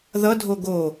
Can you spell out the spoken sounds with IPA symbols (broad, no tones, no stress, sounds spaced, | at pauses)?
ð ʌ dʱ o ɡ o